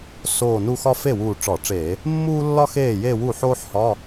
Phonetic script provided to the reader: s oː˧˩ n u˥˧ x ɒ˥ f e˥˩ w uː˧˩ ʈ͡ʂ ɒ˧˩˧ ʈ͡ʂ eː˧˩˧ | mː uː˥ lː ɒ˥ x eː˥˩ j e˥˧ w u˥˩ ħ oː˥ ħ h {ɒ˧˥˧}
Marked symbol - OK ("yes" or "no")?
yes